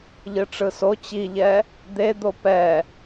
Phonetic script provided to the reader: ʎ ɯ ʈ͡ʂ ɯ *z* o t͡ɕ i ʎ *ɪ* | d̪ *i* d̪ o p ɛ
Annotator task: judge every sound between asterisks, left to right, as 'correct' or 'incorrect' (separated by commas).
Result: incorrect, incorrect, incorrect